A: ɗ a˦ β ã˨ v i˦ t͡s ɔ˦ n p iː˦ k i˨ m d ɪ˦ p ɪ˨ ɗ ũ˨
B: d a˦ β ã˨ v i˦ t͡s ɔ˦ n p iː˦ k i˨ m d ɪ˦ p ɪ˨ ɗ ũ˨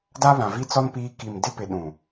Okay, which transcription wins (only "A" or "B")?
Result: B